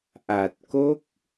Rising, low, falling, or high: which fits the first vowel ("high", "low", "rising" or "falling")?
low